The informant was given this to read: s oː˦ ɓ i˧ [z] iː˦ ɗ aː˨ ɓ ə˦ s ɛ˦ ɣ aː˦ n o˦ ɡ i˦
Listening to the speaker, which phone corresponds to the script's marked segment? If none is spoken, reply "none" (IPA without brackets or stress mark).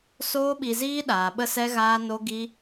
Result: z